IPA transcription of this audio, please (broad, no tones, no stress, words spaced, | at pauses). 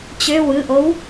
t͡ɕø wɯʔow